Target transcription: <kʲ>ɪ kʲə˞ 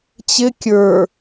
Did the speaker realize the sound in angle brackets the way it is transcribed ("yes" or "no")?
no